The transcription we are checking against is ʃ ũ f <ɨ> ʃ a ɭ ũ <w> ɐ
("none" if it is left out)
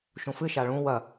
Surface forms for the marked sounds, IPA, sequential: ɨ, w

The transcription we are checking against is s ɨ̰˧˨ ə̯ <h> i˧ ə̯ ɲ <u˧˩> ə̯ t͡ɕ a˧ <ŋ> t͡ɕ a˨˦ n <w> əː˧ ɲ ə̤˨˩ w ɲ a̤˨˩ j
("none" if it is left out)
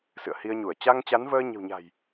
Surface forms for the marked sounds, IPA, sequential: h, u˧˩, ŋ, v

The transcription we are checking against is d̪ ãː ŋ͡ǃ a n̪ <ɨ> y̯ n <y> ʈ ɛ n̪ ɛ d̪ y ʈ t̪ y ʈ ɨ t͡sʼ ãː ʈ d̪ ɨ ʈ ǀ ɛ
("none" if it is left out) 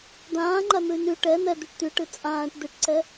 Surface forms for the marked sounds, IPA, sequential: ɨ, y

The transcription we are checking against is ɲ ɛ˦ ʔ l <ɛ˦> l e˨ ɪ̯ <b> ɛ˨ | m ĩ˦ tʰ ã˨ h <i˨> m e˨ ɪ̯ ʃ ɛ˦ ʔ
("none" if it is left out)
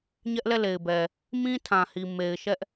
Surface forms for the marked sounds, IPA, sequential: ɛ˦˨, b, i˨

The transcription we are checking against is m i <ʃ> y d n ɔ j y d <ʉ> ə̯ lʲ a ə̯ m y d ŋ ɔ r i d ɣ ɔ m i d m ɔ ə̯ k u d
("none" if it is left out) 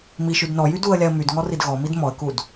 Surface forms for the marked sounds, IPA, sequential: ʃ, u

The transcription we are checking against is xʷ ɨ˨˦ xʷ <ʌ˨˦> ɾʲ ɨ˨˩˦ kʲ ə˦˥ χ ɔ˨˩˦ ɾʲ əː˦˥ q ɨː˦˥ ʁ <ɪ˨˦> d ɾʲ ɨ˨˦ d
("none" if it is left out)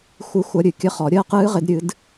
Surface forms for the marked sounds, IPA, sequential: ʌ˨˦, ɪ˨˦

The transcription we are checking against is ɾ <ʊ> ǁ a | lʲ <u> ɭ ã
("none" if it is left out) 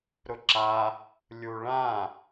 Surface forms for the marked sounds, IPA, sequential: ʊ, u

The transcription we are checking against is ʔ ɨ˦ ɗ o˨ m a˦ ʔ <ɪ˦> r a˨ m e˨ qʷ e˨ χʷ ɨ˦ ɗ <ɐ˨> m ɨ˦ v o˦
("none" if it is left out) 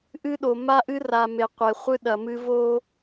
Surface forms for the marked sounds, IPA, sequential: ɨ˦, ɐ˨

